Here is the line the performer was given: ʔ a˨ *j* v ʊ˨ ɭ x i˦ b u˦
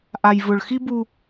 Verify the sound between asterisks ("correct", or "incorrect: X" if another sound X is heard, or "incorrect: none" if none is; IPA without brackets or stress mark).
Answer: correct